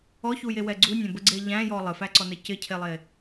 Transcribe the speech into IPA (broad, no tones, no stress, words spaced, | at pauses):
ɔçujewɛ ɡ͡ǀunʲæ̃bəɡ͡ǀe ʎæ̃jɔ lˠɘfæǀɔnɘ cɪcʰelˠe